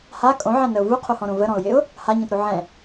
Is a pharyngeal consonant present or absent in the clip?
present